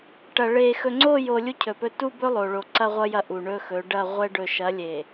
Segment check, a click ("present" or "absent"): present